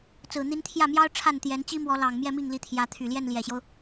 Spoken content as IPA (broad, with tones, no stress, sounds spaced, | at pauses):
t͡s ɹ̩˨˩ n̪ i˧˥ n t̪ʰ j ä˥˩ m j ɑ˥ ʊ̯ ʈ͡ʂʰ a˥˩ n t̪ j ɛ˧˥ n t͡ɕ i˥ m w ɔ˧˥ l ɑ˨˩ ŋ m j ɛ˥˧ m i˥˩ ŋ l i˧˥ t̪ʰ j ä˧˥ t̪ʰ y˨˩ l j ɛ˥˩ n l j ɛ˨˩ ɕ j o˦ ʊ̯